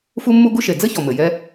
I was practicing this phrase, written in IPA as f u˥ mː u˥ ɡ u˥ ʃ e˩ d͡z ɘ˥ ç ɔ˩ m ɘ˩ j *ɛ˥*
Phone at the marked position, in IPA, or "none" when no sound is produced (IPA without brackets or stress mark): ɛ˥